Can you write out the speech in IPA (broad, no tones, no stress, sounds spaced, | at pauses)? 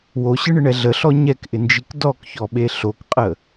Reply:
w o ɕ ɨ ɳ ɪ ɳ ɛ ɮ ə ɬ ɔ ɲ ɛ k ʔ ɪ n d͡ʒ i k d ɔ k ç ɔ ɓ e ɬ o k qʼ ə